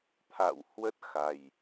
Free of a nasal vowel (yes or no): yes